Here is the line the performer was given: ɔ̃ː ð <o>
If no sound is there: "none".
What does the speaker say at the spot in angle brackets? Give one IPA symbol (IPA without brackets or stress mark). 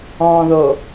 o